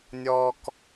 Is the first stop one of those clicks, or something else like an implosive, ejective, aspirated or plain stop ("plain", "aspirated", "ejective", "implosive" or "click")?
plain